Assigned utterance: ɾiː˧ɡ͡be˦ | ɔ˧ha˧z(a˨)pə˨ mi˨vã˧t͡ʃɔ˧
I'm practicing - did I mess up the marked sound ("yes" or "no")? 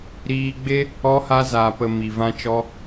yes